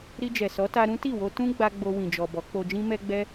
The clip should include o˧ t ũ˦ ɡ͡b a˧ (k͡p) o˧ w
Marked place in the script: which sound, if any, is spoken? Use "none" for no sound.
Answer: ɡ͡b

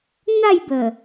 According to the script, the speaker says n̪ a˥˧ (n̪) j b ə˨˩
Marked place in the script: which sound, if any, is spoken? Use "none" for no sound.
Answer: none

